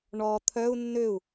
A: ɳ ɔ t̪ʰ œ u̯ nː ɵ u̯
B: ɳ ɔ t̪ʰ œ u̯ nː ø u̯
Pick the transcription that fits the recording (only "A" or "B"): B